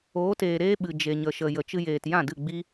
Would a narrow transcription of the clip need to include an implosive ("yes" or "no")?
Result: yes